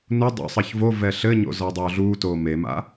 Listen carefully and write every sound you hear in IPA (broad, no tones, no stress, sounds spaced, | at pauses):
n u dˤ o̰ sˤ ɐ ç v o v ɛ ɬ ɘ ɲ o̰ z ɔ dˤ e o̯ ɮ uː t oː m e m a̰